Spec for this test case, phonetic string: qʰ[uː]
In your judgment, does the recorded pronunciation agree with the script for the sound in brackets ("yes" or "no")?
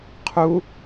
no